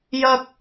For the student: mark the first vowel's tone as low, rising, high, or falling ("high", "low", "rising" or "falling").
high